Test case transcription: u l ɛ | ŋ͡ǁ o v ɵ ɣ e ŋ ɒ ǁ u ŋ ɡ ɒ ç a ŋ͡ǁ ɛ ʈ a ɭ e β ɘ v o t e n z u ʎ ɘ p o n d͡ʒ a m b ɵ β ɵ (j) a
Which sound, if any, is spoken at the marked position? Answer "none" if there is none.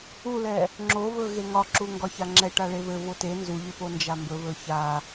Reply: ç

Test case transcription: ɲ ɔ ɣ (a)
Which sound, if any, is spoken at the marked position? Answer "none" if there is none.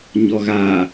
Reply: a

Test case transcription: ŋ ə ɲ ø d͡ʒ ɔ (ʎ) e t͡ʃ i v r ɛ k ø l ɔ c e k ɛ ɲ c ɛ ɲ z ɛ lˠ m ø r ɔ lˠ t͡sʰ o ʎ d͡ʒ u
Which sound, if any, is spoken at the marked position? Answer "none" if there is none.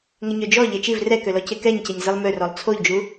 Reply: ʎ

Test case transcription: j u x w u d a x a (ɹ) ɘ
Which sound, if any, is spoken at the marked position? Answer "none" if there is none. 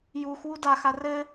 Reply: r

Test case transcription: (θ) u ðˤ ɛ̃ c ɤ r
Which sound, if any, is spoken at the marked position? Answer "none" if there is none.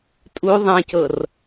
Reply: tʼ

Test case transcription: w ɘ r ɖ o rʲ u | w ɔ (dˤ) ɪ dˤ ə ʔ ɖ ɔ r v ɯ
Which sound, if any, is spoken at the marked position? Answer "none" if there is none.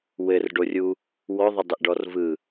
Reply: ðˤ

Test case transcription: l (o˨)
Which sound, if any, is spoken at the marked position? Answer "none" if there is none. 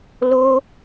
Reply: o˦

